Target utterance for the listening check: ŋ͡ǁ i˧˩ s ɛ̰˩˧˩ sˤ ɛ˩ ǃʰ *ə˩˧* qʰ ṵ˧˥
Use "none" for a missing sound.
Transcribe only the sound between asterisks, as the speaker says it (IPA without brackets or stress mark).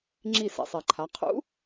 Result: a˩˧